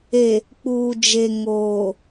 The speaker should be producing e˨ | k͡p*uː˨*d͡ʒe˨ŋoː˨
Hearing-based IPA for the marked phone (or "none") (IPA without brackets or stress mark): uː˨